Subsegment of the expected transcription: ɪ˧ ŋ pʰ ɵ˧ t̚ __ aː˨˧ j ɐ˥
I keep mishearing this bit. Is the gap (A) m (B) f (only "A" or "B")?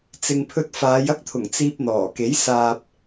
B